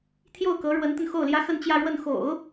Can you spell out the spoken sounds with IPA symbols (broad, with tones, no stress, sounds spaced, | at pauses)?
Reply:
t̪ʰ j o˥˩ ʊ̯ k ɤ˧˥ ɻ w ə˧˥ n t̪ ə˧ n x o˥˩ ʊ̯ l j ä˥ x ə˥˧ n t͡ɕ j ä˥˧ ɻ w ə˥˩ n x o̰˨˩˦ ʊ̯